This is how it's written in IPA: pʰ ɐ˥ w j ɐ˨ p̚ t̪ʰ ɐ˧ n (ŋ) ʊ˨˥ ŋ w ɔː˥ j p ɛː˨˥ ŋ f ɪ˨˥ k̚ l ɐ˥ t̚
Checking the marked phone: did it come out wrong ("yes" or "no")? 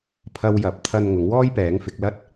no